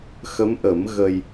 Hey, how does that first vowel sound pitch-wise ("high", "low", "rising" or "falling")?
rising